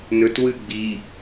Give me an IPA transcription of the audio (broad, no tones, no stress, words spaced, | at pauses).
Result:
nɵt wɨ ɡ͡bi